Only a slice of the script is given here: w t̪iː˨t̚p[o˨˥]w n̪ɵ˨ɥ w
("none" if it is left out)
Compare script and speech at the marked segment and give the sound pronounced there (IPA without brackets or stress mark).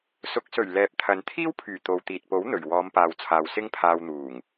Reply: o˨˥